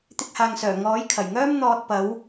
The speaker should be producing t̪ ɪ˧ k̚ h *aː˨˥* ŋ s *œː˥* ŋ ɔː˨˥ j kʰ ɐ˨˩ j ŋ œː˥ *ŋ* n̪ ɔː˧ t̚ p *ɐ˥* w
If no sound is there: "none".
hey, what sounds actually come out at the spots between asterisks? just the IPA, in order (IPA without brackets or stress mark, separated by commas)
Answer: aː˨, œː˨˩, m, ɐ˨˥